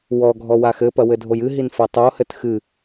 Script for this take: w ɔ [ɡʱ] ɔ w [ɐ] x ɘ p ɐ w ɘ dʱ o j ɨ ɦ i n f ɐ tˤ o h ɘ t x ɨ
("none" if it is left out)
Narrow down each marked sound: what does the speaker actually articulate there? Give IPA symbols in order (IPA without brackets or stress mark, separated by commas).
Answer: ɡʱ, a